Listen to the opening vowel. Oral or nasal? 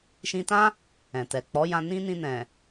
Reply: nasal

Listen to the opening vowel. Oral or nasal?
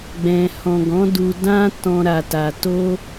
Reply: nasal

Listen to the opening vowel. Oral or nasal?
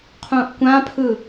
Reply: nasal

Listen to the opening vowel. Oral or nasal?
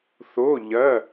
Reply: oral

